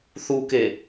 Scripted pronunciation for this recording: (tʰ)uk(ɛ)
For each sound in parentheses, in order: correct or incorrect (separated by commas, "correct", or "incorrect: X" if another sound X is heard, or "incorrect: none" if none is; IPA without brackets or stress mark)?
incorrect: θ, incorrect: e